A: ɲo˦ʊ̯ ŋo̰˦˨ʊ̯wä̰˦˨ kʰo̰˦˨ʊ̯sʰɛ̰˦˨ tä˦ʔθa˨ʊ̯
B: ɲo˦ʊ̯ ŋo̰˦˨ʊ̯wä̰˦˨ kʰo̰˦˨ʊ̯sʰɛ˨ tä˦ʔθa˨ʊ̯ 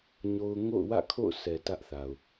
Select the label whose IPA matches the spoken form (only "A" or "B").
B